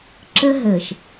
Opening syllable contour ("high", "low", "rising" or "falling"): high